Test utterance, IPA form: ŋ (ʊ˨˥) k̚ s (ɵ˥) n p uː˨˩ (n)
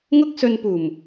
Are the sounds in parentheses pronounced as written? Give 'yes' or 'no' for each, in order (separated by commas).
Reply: no, no, no